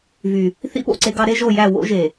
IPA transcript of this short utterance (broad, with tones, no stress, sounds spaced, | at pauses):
v y˨ | θ ḭ˦ p o̰˨ ǀ e˦ ɡ ɑ˦ ɾ e˦ ʒ o˦˨ j æ˦˨ w o̰˦ ʒ e˨